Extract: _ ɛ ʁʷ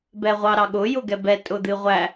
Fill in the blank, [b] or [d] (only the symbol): b